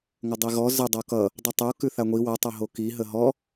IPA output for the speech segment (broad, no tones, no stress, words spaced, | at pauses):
ŋʷədˤiɣɔ zə dˤokʌ | dˤətˤo kʉθaŋʷi wʌ tˤʌɦoki ɦəɦɔ